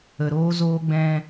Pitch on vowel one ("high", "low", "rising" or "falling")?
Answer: low